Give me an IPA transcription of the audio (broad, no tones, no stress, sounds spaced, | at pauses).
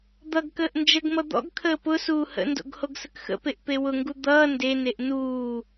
d̪ ʌ ɡ k əː ʔ n d͡ʒ ə ɡ m ʌ d̪ ɔ̰ ɡ kʰ əː p ʊ s uː h ə̰ n d o̰ ɡ h o ɡ s ə k x ə̰ p e ʔ p e w ʊ ŋ ɡ u d̪ ʌː n d e n e ʔ n uː